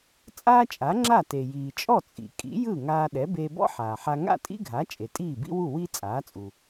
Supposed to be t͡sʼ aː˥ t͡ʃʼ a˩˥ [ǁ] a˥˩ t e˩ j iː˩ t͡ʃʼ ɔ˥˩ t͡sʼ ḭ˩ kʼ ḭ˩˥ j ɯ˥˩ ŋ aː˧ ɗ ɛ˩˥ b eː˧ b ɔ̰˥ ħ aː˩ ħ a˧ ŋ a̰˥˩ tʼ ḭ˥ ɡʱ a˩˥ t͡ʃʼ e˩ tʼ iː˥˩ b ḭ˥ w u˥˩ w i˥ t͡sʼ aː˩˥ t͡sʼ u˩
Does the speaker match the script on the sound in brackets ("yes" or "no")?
no